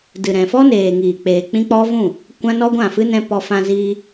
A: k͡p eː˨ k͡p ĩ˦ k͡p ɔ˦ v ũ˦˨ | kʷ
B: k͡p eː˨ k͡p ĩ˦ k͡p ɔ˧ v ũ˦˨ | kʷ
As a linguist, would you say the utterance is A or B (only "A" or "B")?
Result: A